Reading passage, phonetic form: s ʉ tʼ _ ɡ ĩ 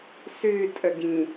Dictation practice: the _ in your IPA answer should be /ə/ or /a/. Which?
ə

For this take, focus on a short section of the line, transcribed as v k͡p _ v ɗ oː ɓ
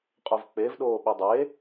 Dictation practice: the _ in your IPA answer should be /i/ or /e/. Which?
e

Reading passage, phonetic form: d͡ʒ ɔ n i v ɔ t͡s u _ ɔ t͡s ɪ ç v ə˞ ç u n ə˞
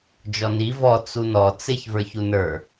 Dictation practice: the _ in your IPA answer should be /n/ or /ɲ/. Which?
n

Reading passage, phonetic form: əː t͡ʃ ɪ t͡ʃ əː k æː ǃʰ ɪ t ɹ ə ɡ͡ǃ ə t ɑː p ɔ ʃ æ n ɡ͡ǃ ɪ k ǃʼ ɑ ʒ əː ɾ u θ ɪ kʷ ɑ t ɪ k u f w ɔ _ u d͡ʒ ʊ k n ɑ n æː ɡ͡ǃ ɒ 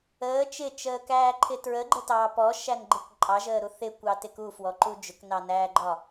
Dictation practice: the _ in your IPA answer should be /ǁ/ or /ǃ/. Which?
ǃ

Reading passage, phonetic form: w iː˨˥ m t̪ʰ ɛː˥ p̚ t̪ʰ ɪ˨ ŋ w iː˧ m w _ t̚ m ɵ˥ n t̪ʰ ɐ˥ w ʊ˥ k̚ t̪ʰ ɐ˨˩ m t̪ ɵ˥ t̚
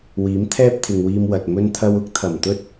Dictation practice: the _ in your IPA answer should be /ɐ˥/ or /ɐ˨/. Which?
ɐ˨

